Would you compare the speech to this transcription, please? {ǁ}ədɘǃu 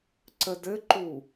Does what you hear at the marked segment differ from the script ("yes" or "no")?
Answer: yes